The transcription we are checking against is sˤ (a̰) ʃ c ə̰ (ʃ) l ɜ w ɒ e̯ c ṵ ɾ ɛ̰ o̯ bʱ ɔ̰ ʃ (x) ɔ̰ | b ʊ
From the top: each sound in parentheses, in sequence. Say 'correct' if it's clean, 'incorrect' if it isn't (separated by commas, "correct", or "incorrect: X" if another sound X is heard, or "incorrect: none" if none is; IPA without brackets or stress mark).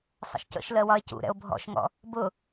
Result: incorrect: ə̰, correct, incorrect: ŋ